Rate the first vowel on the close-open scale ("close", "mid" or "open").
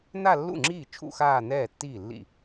open